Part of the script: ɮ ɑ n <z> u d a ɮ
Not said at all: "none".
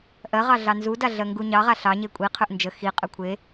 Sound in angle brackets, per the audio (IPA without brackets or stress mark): z